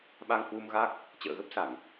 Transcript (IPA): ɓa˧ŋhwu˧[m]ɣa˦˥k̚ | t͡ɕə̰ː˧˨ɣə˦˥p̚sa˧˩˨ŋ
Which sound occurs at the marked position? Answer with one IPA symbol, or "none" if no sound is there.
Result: m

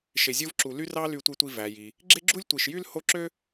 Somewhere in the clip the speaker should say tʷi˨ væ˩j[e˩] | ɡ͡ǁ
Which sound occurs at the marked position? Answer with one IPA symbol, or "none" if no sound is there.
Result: i˩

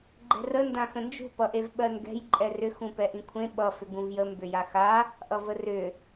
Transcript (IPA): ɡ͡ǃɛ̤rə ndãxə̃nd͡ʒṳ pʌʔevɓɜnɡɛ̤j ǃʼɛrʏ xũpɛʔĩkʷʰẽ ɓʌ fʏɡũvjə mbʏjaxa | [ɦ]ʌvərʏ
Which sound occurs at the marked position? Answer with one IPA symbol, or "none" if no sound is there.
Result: ʔ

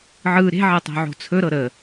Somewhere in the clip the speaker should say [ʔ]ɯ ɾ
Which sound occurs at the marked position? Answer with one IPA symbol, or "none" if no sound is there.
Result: ʕ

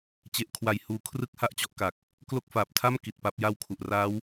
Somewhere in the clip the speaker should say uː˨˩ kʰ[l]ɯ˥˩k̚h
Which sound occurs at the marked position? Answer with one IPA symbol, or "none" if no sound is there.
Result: r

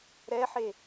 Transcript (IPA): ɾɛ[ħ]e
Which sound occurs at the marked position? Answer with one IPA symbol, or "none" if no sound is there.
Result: ħ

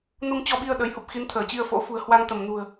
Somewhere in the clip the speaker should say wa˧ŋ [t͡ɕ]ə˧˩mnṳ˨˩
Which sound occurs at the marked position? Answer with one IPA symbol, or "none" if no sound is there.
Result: t̪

